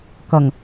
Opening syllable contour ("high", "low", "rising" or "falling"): low